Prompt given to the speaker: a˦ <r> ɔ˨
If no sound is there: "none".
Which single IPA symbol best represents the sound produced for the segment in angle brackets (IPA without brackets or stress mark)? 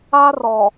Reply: r